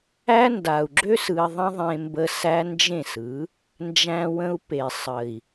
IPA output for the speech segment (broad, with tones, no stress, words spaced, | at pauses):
æ˦ nda˨u̯ɡ͡ǁø˦s ɯ˧i̯ðˤə̃˦ðˤẽ˧ mbə˧ sæ˦nd͡ʒẽ˦˨sɯ˨˦ | nd͡ʒæ̃˧wə̃˧u̯pe˨sˤə˨i̯